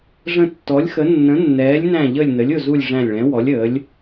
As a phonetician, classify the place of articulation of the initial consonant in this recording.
retroflex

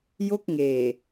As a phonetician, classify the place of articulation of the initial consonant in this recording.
palatal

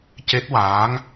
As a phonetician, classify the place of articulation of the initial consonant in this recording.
palatal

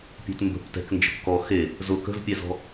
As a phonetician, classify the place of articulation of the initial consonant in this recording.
labial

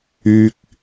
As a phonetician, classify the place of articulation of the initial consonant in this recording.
velar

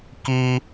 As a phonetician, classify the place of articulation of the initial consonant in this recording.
velar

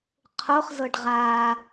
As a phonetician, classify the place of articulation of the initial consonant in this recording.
uvular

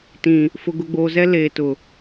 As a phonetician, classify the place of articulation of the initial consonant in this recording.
alveolar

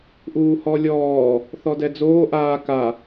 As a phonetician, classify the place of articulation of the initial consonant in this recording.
glottal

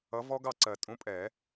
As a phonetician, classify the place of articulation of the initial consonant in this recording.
labial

